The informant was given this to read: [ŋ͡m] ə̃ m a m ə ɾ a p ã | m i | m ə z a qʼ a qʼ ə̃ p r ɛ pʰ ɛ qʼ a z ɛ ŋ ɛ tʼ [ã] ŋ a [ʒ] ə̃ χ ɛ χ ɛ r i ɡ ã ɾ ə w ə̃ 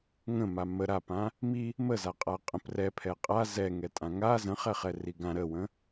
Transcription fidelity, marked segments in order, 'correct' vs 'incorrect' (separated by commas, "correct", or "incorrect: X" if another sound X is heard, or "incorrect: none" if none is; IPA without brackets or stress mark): incorrect: ŋ, correct, incorrect: z